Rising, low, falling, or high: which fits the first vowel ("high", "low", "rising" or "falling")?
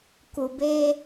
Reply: low